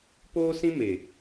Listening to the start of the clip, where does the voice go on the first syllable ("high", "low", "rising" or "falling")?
high